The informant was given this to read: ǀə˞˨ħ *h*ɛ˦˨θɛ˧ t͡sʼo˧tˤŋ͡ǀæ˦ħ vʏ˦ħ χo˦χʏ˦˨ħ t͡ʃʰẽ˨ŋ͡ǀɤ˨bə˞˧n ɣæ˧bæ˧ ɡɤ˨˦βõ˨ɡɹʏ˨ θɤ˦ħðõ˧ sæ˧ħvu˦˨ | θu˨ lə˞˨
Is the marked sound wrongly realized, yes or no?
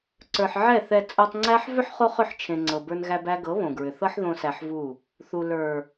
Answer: yes